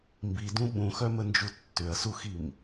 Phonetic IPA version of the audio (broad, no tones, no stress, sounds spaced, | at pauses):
m b i d ũ ɓ ũ x œ m ə n d͡ʒ u tː ʏ ɐ̯ s u x i m